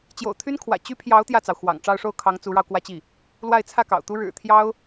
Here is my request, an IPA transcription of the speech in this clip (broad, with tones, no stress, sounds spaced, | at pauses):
t͡ɕ j o̰˨˩ ʊ̯ t̪ʰ y˥ n kʰ w ä̰˨˩ t͡ɕ y˥ pʰ j ɑ˧˥ ʊ̯ t̪ j ä˥˩ t͡s ɑ˩ ʊ̯ x w ɑ̰˨˩ ŋ ʈ͡ʂ ɑ˥˧ ʊ̯ ʂ o˥˩ ʊ̯ kʰ ɑ˧˥ ŋ t͡s u˧˥ ɻ ɑ˧ ʊ̯ k w ä˥˧ t͡ɕ i˥˩ | l w a˥˧ ɪ̯ t͡sʰ ä˥˩ k ɑ̰˨˩ ʊ̯ t̪ u˥ ɻ ɻ̩˨˩ t̪ʰ j ɑ˥ ʊ̯